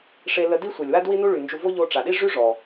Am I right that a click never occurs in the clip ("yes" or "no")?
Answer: yes